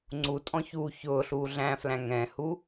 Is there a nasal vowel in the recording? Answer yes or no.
yes